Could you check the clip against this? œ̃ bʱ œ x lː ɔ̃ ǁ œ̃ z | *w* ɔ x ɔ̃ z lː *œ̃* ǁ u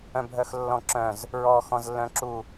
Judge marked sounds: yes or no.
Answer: no, yes

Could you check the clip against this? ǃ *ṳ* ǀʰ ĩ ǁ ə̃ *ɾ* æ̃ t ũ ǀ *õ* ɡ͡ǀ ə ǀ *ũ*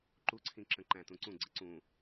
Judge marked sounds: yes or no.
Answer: no, no, no, yes

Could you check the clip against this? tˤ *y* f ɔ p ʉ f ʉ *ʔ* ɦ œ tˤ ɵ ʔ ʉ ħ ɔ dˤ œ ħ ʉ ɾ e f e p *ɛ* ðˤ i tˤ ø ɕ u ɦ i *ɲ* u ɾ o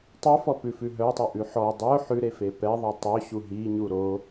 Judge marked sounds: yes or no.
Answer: yes, no, yes, yes

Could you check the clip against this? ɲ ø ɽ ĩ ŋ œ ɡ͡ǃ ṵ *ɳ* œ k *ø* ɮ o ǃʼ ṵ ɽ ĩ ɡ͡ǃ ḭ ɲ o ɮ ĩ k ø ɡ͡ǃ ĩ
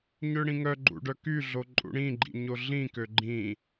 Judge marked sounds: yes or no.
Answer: no, no

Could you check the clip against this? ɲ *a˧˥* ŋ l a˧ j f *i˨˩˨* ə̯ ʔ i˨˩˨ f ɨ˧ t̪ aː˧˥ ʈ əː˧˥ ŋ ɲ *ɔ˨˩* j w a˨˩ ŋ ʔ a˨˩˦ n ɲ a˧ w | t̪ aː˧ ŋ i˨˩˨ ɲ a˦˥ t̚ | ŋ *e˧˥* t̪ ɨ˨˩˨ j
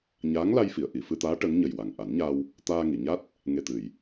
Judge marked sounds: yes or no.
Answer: no, yes, no, no

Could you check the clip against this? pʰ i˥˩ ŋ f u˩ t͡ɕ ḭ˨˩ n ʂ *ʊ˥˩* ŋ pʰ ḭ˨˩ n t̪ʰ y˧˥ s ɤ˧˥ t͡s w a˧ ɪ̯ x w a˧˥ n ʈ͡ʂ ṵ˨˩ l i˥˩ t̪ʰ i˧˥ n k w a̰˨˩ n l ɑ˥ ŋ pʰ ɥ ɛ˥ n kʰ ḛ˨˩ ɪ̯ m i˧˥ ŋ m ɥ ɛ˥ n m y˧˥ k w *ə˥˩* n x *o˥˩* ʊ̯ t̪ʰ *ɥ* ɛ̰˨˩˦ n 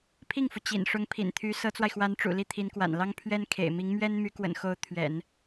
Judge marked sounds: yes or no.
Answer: no, no, no, yes

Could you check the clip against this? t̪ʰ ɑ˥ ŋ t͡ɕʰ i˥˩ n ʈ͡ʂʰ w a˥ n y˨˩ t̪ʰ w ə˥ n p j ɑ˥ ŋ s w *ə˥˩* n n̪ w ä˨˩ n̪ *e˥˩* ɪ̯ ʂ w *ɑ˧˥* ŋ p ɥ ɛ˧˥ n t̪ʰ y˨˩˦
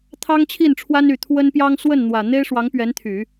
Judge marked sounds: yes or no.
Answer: yes, no, yes

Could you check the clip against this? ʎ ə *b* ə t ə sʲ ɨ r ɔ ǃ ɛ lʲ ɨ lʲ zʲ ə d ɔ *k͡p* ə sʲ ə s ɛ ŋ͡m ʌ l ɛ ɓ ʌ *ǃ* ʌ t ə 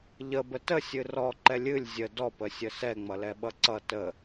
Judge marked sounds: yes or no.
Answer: yes, no, no

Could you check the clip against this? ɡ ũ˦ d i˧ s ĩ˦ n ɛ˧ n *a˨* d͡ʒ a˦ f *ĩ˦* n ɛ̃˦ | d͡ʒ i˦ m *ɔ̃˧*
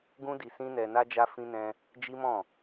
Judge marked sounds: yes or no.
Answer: no, yes, no

